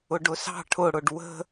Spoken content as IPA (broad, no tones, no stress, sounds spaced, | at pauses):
ʊ ɖ ʊ s ɑ̤ ʈʰ ʊ ɽ ʊ ɖ w ə̤